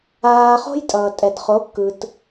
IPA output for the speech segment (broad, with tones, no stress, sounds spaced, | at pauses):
aː˧ χ o̤˥ j tʼ ʌː˩ tʼ ɛ˩ d χ o˩˥ kː ɯ˩ t